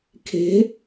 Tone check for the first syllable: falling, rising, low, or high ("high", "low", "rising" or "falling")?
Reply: rising